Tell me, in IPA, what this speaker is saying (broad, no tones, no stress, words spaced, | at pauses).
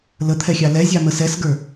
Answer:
lət̪ʰɛxʲɑ lɛzʲɑmə sɛsɡə˞